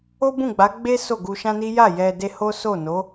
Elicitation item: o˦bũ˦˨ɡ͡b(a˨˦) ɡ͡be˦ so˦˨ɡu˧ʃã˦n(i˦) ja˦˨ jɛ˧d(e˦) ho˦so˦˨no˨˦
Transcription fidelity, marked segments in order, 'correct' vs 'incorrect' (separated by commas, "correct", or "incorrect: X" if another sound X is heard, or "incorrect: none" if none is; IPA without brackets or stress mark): correct, correct, correct